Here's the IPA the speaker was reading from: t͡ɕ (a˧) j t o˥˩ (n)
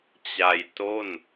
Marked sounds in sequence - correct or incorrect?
correct, correct

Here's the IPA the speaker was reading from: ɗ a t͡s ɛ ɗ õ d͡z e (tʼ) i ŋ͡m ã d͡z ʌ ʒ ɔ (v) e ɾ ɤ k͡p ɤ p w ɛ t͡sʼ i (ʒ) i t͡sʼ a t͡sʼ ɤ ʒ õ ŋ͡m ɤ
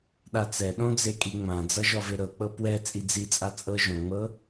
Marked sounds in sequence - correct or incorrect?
incorrect: kʼ, correct, incorrect: d͡z

